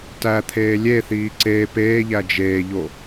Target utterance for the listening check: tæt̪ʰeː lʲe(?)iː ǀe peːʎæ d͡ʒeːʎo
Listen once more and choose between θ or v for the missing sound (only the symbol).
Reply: θ